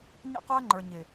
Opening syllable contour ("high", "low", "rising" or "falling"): falling